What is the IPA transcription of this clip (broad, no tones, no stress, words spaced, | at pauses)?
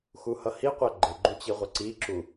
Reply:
xuhʌhiqʷæ ɡ͡ǃɪɡ͡ǃu t͡ɕiʁʷʌǀiǁu